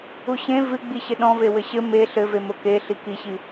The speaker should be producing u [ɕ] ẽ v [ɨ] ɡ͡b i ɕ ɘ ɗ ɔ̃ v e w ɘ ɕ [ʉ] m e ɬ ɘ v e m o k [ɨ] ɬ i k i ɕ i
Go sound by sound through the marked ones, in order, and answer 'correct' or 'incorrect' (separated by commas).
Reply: correct, correct, incorrect, incorrect